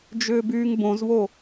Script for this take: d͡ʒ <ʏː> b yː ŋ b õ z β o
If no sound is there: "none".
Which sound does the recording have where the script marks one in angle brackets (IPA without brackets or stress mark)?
ʏː